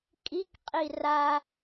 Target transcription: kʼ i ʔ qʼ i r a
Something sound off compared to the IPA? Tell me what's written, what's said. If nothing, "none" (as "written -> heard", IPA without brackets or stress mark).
ʔ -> k